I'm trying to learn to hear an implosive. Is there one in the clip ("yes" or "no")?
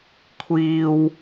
no